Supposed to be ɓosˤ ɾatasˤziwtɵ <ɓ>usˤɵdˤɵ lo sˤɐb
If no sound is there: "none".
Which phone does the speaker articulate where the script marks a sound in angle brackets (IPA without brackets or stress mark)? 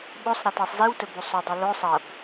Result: b